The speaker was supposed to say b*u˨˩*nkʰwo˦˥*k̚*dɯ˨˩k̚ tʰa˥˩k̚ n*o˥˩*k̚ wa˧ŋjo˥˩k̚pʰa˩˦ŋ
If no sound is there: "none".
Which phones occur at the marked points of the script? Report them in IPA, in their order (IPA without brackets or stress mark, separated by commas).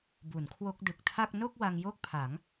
u˩˦, k̚, o˥˩